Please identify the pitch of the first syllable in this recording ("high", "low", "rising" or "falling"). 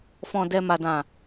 low